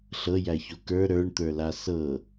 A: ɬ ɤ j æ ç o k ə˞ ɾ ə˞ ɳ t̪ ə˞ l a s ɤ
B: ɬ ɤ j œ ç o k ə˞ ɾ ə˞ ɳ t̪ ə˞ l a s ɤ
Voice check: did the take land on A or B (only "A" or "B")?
A